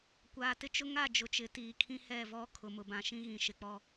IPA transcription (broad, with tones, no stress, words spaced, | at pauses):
kʷaː˨tɪ˦t͡ʃʊ˦ŋa˦˨ d͡ʒʊ˨t͡ʃɪ˨˦tiː˨kʰĩ˦ hɛ˦˨vɔ˦ kʰʊ˨mʊ˨bã˨ ʃĩ˦ɣĩ˨ʃɪ˨k͡pɔ˦